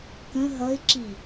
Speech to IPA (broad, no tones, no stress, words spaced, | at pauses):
kə̃ ɦʌɪ̯ǁi